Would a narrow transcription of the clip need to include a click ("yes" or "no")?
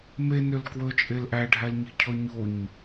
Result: no